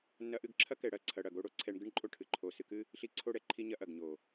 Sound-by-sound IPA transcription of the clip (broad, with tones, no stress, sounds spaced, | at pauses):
nː ɐ˧ ʔ ɨ˦˨ ɡ ǁʰ ɐ˦ k ɛ˧ ɽ ɐ˦˨ ǀʰ ɐ˧ ɽ ɐ˨ ɡ o˦ ɽ o˦ ǀʰ ɛ˧ ɳ ɡ ɨ˦ ɳ ǃʼ o˦ ʈʰ ɨ˨ ǃʰ o˧ s ɨ˧ k ɨ˦ | ɬ i˨˦ ǀʰ o˧ ɽ ɛ˨ ǃʰ i˧ ɲ ɐ˧ ʔ ɐ˨ ɡ ɲ o˨